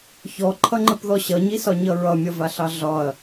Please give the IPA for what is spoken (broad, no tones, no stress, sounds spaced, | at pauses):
ç ɔ ǃʰ ʌ ŋ͡ǃ ə p ð ɔ ɕ ʌ ɲ i s ɒ ɲ ʌ ɹ ʌ mʲ ʌ v a ɬ ɑ ɮ ɒ ɐ̯